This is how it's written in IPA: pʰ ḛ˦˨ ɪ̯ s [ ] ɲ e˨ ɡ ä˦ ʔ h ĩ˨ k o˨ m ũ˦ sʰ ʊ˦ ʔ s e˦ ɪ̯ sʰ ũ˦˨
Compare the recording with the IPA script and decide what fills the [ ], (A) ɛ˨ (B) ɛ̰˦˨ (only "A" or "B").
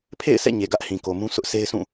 B